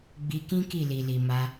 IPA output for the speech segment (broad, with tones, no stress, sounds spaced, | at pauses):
ɡ͡b i˧ k ĩ˦ k i˦˨ l i˨ l i˨ m a˧